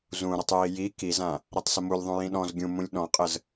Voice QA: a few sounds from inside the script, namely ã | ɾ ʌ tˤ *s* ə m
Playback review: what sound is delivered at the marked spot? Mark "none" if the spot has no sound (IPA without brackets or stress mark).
s